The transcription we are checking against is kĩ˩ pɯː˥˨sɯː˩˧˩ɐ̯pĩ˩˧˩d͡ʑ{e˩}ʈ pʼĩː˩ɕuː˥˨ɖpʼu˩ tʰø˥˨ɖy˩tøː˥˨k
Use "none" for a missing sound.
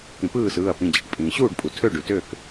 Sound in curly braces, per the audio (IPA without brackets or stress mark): i˩